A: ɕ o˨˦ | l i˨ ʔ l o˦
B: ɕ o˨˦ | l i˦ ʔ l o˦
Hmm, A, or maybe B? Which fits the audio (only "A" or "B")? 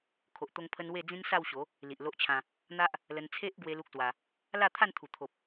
A